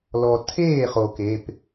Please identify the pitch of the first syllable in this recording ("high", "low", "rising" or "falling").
low